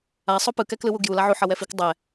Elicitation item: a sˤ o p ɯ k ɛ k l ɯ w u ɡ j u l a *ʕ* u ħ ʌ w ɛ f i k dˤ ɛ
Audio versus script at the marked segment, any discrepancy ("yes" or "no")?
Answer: no